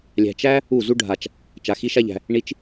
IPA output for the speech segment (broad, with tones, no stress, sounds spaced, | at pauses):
lʲ æ̤˧ t͡ʃ æ˦ | u˦˨ z u˦ ɖʱ a˧ t͡ʃ | t͡ʃ a˧ x i˦ ʃ a˦ ʎ æ̤˧ | ɳ i˧ t͡ʃ